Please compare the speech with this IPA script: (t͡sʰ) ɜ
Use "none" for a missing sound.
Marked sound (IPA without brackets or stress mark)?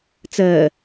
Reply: t͡s